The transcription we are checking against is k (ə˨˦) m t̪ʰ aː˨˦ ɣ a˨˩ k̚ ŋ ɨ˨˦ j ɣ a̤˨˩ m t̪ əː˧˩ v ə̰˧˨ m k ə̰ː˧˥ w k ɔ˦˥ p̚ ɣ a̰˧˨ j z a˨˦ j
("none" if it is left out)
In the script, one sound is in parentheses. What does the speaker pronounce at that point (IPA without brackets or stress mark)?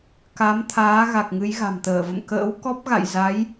a˨˦